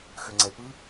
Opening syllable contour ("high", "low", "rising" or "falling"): low